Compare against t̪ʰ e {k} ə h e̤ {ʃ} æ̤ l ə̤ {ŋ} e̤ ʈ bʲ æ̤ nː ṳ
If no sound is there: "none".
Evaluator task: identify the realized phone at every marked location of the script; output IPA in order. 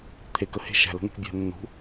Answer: k, ʃ, ŋ

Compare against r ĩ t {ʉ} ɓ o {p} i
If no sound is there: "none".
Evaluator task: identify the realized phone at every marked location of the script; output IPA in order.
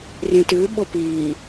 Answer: ʉ, p

